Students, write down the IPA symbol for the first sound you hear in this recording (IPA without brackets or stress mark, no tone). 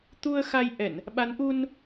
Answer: t̪